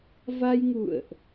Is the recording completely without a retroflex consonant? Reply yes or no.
yes